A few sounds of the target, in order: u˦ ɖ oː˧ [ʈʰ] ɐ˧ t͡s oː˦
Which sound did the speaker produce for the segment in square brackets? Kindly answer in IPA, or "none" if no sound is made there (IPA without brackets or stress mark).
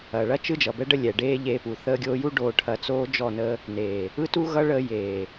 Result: ʈʰ